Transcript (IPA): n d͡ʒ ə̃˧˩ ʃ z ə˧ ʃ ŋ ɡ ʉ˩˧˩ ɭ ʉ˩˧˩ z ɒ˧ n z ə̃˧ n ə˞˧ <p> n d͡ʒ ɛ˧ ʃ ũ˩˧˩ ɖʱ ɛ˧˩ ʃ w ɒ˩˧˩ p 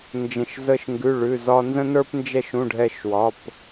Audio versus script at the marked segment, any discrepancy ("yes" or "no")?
no